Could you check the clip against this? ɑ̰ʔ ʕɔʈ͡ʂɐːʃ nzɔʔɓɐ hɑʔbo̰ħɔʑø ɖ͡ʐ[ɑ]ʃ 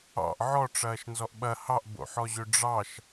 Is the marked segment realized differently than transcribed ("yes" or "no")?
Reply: no